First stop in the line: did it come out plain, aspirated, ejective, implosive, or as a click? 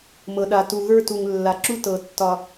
implosive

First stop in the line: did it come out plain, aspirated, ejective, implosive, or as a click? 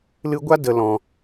plain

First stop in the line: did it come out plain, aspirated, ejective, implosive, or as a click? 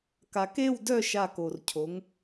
plain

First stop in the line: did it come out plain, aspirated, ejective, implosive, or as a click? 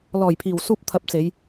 aspirated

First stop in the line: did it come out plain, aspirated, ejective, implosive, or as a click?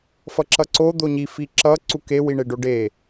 click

